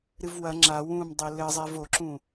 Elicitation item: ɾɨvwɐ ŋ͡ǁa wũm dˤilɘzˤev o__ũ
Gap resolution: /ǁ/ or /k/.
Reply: ǁ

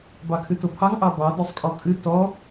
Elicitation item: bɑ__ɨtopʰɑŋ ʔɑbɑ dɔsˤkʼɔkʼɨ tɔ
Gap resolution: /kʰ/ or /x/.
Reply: kʰ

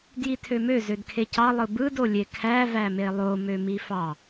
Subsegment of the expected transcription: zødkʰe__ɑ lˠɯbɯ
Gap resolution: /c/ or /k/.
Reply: c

